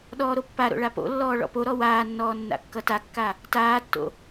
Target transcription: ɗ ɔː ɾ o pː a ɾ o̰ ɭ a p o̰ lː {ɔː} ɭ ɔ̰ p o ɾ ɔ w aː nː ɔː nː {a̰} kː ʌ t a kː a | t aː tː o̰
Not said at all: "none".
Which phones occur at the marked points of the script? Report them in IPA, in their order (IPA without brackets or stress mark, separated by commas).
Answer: ɔː, a̰